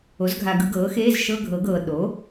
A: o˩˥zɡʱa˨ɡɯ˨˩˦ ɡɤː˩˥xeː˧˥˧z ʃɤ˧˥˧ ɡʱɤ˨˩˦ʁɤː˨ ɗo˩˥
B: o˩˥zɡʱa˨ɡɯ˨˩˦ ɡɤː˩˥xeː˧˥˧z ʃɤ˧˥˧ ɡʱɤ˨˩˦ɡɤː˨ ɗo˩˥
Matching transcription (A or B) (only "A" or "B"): B